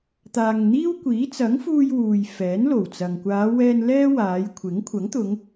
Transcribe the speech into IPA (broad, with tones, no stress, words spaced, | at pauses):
t̪aː˨ŋn̪iː˥wkʷiː˨˥ t͡sɐ˨˥ŋfuː˧j wuː˨jfɛː˨˥nlo˨˩wt͡sɐ˨ŋ kʷaː˨˧wɛː˧n lɛː˥waː˨˧jkʷʰɪ˨˥ŋ kʷʰɐ˨˥ŋt̪ʊ˨˧ŋ